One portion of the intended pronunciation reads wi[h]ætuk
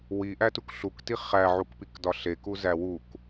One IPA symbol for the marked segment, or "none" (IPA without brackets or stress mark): ʔ